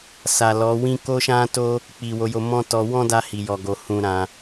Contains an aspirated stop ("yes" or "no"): no